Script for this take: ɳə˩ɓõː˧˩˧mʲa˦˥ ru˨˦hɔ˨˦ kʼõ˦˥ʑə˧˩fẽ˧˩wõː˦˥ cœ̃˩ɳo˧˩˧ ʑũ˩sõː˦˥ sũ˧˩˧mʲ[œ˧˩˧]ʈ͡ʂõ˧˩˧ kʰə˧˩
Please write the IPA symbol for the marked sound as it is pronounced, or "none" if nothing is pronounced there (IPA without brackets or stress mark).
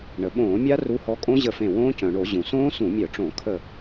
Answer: œ˧˩˧